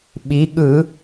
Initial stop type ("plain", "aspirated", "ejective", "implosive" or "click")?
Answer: implosive